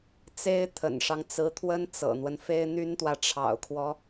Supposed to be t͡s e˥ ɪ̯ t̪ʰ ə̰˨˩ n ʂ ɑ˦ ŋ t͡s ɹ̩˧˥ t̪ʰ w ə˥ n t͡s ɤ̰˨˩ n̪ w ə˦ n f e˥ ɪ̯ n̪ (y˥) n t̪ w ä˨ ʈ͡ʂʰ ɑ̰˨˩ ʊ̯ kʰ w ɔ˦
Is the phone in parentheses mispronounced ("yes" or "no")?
no